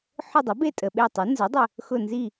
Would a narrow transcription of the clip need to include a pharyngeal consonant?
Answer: yes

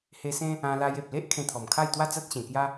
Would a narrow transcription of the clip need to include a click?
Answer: no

